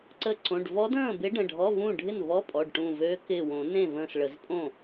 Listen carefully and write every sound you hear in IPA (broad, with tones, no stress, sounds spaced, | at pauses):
ǀ ə˧˩ ǀ õ˩˧˩ ɖ v ɔ˧˥ d ə̃ː˥˩ b ɪ˧˥ ɖ ə̃˩˧˩ ɖʱ ɔ˧˥˧ v ũ˥˩ ɖʱ ɪ˥˩ n v ɔ˧˥˧ pʼ ɔ˩˧˩ ɖ ʈ ũ˧˩ v ø˧˥ k ɪ˧˩ w õ˨˩˦ n ẽ˥˩ v ə̃ː˧˩ s ɭ ə˨˩˦ z pʼ õ˥˩